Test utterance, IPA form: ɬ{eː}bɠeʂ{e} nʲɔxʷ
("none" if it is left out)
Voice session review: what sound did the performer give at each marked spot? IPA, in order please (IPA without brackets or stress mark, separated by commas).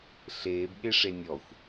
eː, e